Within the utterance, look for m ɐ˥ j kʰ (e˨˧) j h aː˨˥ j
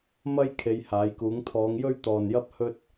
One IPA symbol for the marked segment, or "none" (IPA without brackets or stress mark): e˨˧